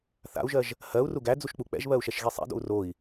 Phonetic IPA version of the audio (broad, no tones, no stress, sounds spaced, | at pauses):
θ a̰ u̯ ʒ ɜ ʒ | h ɜ u̯ r u ɡ æ d͡z u ʃ k͡p u k͡p ɛ̰ ʒ β ɜ u̯ ʃ ɛ ʃ ɣ i sˤ ɛ̰ d o̰ u̯ r o i̯